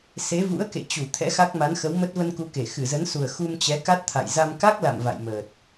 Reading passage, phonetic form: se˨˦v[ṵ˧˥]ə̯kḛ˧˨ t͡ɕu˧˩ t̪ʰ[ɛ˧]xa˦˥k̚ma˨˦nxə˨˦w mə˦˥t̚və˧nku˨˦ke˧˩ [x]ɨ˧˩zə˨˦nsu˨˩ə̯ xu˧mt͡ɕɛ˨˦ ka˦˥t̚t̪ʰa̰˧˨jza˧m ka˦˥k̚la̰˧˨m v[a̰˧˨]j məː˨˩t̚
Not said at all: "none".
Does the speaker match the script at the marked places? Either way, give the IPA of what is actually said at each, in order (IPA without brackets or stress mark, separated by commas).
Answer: ṵ˧˥, ɛ̰˧˥, x, a̰˧˨